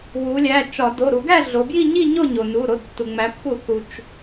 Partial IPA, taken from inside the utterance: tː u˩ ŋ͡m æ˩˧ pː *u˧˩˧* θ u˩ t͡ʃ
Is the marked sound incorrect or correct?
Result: correct